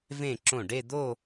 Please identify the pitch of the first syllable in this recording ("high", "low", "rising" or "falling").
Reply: falling